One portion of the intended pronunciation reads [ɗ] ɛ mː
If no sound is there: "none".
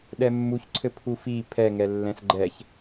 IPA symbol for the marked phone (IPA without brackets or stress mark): ɗ